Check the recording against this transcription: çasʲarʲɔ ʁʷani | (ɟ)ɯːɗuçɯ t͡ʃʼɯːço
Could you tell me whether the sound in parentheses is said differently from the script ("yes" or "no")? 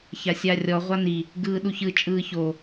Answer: yes